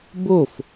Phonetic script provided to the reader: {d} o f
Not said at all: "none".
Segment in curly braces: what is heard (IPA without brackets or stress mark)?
b